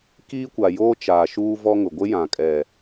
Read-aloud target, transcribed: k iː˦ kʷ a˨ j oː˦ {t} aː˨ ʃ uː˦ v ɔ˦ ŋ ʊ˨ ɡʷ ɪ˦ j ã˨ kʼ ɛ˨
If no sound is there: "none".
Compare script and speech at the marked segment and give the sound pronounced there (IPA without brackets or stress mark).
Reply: t͡ʃ